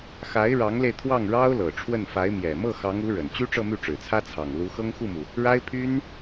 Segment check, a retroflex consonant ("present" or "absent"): present